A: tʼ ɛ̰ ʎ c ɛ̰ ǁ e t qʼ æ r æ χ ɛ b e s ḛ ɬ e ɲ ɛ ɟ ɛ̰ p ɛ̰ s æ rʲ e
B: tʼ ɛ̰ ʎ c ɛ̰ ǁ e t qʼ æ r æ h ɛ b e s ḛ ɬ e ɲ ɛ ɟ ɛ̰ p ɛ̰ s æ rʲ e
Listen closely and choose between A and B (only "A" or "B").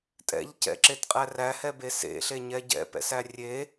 B